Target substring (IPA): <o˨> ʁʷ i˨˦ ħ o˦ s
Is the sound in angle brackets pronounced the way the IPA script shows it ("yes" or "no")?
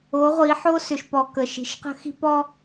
no